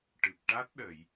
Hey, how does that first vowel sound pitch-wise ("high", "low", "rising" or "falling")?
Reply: low